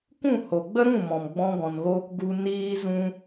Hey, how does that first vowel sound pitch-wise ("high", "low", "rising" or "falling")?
falling